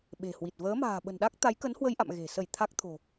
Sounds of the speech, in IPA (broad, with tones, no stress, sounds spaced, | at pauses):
ɓ e̤˨˩ h w i˨˩ t̚ v əː˨˦ m a̤ː˨˩ ɓ ə̤˨˩ n ɗ a˦˥ k̚ t̪ a˨˦ j k ə˨˦ n h w ə˧ j ʔ a̰˧˨ m ɣ e̤˨˩ s ə˧˩ j t̪ʰ a˦˥ k̚ t̪ʰ o̤˨˩